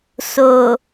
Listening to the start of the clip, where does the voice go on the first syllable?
low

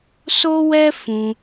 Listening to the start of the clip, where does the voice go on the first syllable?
high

